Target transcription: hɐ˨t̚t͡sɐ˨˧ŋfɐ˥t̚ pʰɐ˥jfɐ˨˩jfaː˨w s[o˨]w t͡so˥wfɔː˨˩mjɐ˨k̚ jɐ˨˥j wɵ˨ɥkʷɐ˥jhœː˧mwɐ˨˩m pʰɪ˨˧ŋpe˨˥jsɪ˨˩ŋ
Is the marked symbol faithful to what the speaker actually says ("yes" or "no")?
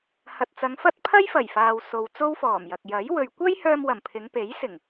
yes